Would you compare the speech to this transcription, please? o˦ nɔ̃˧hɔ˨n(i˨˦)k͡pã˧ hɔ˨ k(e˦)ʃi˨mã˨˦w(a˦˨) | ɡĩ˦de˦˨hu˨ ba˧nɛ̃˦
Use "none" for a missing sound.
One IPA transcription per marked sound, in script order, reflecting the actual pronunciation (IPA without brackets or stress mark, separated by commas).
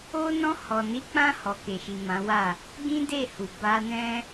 i˨˦, e˨, a˦˨